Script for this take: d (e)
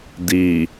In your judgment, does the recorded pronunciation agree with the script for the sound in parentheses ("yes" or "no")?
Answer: no